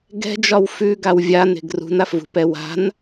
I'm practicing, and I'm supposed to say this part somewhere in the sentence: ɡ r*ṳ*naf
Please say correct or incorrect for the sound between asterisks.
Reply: correct